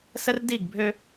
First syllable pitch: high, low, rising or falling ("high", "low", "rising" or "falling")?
high